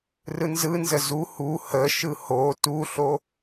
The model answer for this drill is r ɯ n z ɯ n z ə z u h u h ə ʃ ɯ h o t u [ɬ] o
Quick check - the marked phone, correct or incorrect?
correct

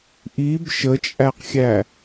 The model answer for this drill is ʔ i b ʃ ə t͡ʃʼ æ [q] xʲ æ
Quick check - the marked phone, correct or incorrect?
correct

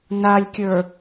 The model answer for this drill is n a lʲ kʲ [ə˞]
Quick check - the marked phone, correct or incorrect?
correct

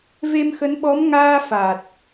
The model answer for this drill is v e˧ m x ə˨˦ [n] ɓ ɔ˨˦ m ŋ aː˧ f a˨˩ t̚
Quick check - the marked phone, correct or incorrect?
correct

